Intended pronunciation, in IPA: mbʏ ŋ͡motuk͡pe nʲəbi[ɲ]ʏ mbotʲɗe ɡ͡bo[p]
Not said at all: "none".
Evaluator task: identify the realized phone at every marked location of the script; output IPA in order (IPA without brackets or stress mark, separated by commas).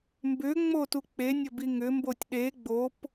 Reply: ŋ, p